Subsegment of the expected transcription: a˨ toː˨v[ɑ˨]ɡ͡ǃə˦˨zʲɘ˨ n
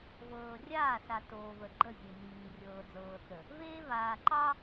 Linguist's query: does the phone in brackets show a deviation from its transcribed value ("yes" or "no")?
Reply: yes